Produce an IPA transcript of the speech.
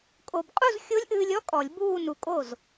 kʼo˧b qʼu˥˧zxʲo˦˥lʲʔɨː˧lʲɔ˦˥ kʼɔ˨˩˦lʲbuː˥˧ nu˨˩˦kʼo˥˩z

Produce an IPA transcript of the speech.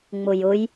ŋ͡mʊjʊj

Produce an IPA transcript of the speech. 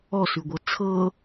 ɔsʉɡʷɤ t͡sʰɤ

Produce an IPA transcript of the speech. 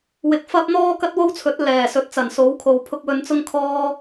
wɪ˨˥k̚fɐ˥p̚ n̪ɔː˥kɐ˥t̚wo˥wt͡sʰɵ˨˥t̚ lɛː˨˩sɵ˨˥t̚t͡sɐ˨˩n so˨˥wkʰo˨w pʰʊ˧k̚wɵ˧nt͡sʊ˥ŋ kʰɔː˥

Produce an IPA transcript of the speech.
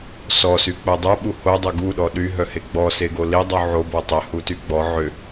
sɔsyk͡po dˤuɓu hodˤo ɡuɗɔ ɗyɦœhe ɡ͡bɔseɡo lidˤu ʕobɔ tˤɪhuty ɡ͡bɔ ʕʏ

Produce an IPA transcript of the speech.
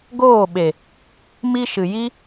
ɡoː˦˨ɓe˨ | mi˧ ʃɨ˨ji˦

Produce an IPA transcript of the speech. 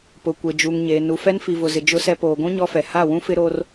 pʊ˨kʷe˨d͡ʒu˨ŋɲeː˨ nu˨fɛ˦n fi˨vʊ˨zɪ˨ d͡ʒʊ˦sɛ˦ poː˨ɡʷũ˦ ɲɔ˦fɛ˨ ha˦˨wũ˦fɪ˦ ɾo˦r

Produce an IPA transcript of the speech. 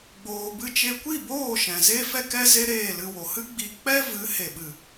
ɡ͡boː˧bɨ˦ t͡ʃe˧kʷi˦˨boː˦˨ ʃɛ̃˨ ze˦fɛ˦ kɛ˦ze˦ ɾeː˦˨lɨ˧wo˨ hɨ˦ɡ͡bi˧ k͡pɛ˦vɨ˨˦ he˨ɓɨ˨

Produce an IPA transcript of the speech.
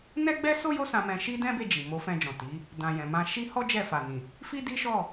nɛ˦ɡ͡bɛ˦ so˦ jo˦sã˧mɛ̃˧ʃi˦ dɛ̃˦be˦˨d͡ʒi˨ mo˨˦fɛ̃˧d͡ʒɔ̃˨ ti˨˦ | dã˨jɛ̃˨ mã˧ʃi˦ hɔ˦ d͡ʒɛ˦˨ fa˨nĩ˨ | fi˦di˦ʃɔ˦˨

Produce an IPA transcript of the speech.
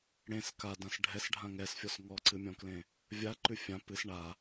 ɽẽs kadãs ɖʱɛsɖʱã ŋɛsfʲɔs ŋɔǀɨmʲɔ̃klẽ | vʲaǃʉ fʲã pɨs ɳa

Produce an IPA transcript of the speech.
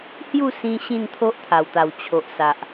hju˥˧sĩ˧ ɕĩ˥˧nt̪ʰo˦ʔt̪ʰa˨˩wt̪a˨˩w t͡ɕʰo˨ʔsa˨ʔ

